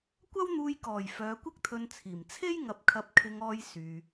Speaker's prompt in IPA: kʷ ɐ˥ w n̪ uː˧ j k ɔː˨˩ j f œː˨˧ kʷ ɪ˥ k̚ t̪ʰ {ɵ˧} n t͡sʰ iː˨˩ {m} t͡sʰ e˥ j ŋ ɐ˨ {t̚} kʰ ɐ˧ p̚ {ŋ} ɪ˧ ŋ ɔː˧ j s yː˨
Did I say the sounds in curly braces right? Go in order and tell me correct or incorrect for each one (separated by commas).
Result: correct, correct, incorrect, incorrect